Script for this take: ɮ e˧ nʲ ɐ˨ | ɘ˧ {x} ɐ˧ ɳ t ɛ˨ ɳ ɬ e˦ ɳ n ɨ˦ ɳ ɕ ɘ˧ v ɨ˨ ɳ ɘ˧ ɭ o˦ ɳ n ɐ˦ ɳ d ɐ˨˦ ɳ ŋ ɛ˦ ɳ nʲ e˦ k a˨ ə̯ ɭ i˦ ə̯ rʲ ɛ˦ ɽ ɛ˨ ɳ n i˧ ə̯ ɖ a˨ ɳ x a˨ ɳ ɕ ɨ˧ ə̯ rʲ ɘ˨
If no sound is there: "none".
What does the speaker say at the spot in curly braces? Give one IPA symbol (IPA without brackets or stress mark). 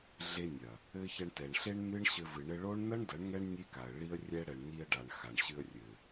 ç